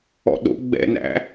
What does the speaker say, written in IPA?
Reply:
ɔ̰ ɗ o̰ ɡ͡b ɛ̰ n æ̰

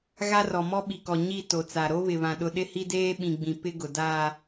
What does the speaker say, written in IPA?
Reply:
ɣ a˦ r ɔ˨ m ɔ˦ ɓ i˨ k ɔ˨ ɲ i˦˨ t o˨ t͡s a˨ ɾ o˦ β ɪ˨ β ã˨ ɗ ʊ˦ ɗ ɪ˦ h i˦ d eː˦ ɓ ĩ˨ ɡ͡b ĩ˨ p ɪ˦ ɡ ʊ˨ d a˦

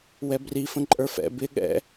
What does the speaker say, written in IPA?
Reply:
w ɛ b r i f ə̃ ǃʼ ə˞ f ɛ̰ b ɪ ɠ ɛ̰

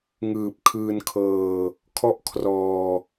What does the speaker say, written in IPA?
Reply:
ŋ ɯː˨˩ p̚ kʰ ɯː˧ n kʰ ɤː˧ | kʰ ɔ˥˩ ʔ kʰ r ɔː˧

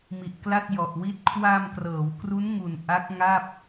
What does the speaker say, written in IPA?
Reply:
m i˨˩ ʔ k l a˥˩ t̚ j ɔ˨˩ ʔ w i˦˥ t̚ kʰ w a˧ m k r ɤː˩˦ w k r u˦˥ n ŋ u˨˩ n ʔ a˦˥ k̚ ŋ a˥˩ p̚

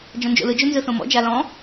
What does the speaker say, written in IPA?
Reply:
d͡ʒ ɔ̃ n d͡ʒ o̰ l ɯ d͡ʒ o n z ɯ θ õ m ɔ̰ d͡ʒ a l ɔ̃

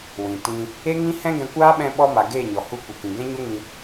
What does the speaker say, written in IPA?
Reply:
w ĩ˨ t ĩ˧ | e˦ ŋ ĩ˦ h ɛ̃˦ ɡ ɛ̃˧ kʷ aː˦ ɓ ɛ̃˧ ɓ ɔ˧ m a˨ ɡ eː˦˨ ɲ ɔ˨ h u˧ kʷ ə˨ k ĩ˨ ɡ ɛ̃˦ ɲ o˦ ŋ ĩ˧

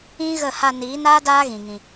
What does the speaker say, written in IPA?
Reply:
ĩ˦ ɣ ə˦˨ h a˧ n iː˨˦ n aː˦ d aː˦ ɣ ĩ˧ ŋ ĩ˧

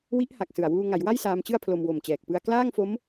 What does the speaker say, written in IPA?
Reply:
w i˦˥ ʔ h a˨˩ k̚ s ɯ˨˩ a̯ w uː˧ ŋ a˩˦ j w a˥˩ j s aː˦˥ m t͡ɕ ɯ˥˩ a̯ pʰ l o˧ m w o˨˩ m t͡ɕ ɛː˨˩ k̚ p ɯ˧ a̯ k l aː˥˩ ŋ f o˦˥ m

